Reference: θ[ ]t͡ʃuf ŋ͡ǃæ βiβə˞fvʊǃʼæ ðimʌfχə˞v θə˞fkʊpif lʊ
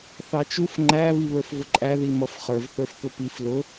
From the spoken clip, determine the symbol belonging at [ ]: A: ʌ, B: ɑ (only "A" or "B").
B